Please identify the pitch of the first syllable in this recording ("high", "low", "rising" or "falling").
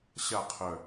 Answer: falling